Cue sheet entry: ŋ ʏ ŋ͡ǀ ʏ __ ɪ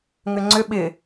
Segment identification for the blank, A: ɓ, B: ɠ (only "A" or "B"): A